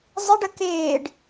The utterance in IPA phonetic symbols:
zˤ ɪ ɖ ə k ɪː ɖ

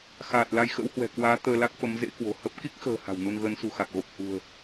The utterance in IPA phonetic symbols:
x aː˨˩ t̚ l a˧ j x ə̰˧˥ w h w ɛ̤˨˩ k w aː˨˦ t̪ əː˧ l a˦˥ k̚ f ə˨˦ m z ḛ˧˥ k w o̤˨˩ h ə˦˥ p̚ k i˦˥ k̚ x ə̤ː˨˩ h a̤˨˩ w n u˧ n ɣ ə˨˦ n s ṳ˨˩ x a˨˩ k̚ ɣ o˨˩ p̚ h ṳ˨˩ ə̯

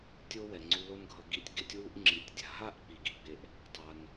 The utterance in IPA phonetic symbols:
tʲ o˦ w ɛ˨ ŋ͡ǀ u˧ l o˦ n ɡʱ ʌ˧ ɡ i˧ tʲ ɡ e˦ tʲ w u˦ ʔ ŋ͡ǁ i˨ tʲ dʲ a̤˨ ɦ a˦˨ ʔ k͡p i˨ ɡ i˧ ɡ͡b e˦ ʔ | tˤ a˧ n

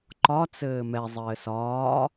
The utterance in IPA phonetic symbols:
ǃ ɒ t͡s ɘː m ɛ zˤ ɘː s ɒː

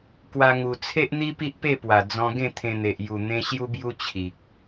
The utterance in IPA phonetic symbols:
k w a˧ ŋ u˨˩ t͡sʰ e˦ ʔ n̪ i˦ p i˦ ʔ p e˥˧ p w a˨˩ d͡z ɔ̃˧ ɡ ẽ˥˧ t̪ʰ ẽ˧ n̪ e˨ ʔ j u˨˩ n̪ ẽ˧ ɕ j u˦ b j u˦ t͡ɕʰ i˨ k̚

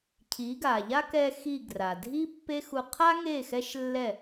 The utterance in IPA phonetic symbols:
cʰ i˩˥ ɡ a˩ ʎ a˥ k ɛ˧ x i˥˩ ɡ r a˩ dʱ i˥ pː e˥ x u˧ qʰ a˥ ŋ e˥˩ x ɛ˥ ʃ lː ɛ˥˩

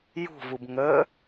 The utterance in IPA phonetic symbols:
j ṳ v u b ŋ ə

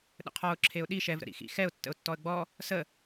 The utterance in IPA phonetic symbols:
ɗ ə̰ qʰ ɔ ʊ̯ ǁʰ e ʊ̯ ɗ i ʃ ɛ v ɾ ə̰ ɾ ḭ x ḭ x ɛ ʊ̯ tː ə̰ ʊ̯ tː ɔ ə̯ ɡ͡b ɔ | s ə

